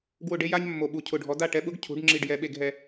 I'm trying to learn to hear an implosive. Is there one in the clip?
yes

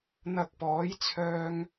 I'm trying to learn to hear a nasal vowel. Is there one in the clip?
no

